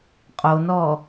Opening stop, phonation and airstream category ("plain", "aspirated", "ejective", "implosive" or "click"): ejective